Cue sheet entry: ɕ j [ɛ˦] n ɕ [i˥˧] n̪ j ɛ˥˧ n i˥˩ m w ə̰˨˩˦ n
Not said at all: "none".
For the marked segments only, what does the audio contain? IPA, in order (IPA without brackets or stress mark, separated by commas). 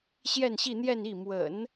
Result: ɛ˥˧, i˥˧